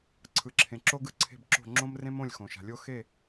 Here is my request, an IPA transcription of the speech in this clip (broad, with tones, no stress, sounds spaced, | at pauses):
ǀʰ ɯ˩ ǁʰ ẽ˩ ǁ o˥ ɡ ɯ˥ ǀʰ e̤˥˨ b ǁ o̤˥˨ ŋ͡ǁ õ˥ m r ẽ˥ m õ˥˨ lʲ x õ˩ ʃ a̤˩ lʲ o˥ x e˥˨